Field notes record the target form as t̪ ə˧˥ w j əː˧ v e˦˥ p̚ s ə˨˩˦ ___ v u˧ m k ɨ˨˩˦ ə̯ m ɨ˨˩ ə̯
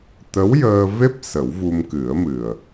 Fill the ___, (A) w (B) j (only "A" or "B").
A